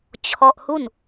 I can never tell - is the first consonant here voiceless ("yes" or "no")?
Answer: yes